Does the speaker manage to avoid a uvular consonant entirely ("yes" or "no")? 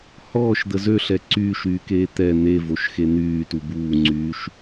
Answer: yes